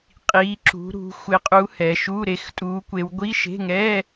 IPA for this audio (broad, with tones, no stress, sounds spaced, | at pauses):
qʼ iː˨˦ ǁ ṳ˨˦ ɾ ṳ˨˦ xʷ ɪ˨˦ qʼ u˨˦ h ɛ˨˦ ʃ u˧˥˧ ɾ e˨˦ x tʼ uː˨˦ kʷ e˨˦ w ɡʷ i˧˥˧ ʃ e̤˧˥˧ ŋ ɛ˧˥˧